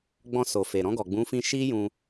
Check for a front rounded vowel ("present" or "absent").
absent